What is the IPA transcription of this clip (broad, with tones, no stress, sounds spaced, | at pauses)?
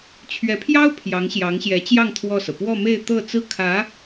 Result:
t͡ɕʰ ɥ ɛ˧˥ pʰ j ɑ˥ ʊ̯ pʰ j ɑ˧˥ ŋ ɕ j ɑ˧˥ ŋ ɕ j ɛ˧˥ t͡ɕ j ɑ˥˧ ŋ t̪ʰ w ɔ˥˩ s ɤ˩ p w ɔ˥˧ m e˥˧ ɪ̯ t̪ ɤ˥˩ t͡s ɹ̩˥ kʰ ä˧˥